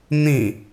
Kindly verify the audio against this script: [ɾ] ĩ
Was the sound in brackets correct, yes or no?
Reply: no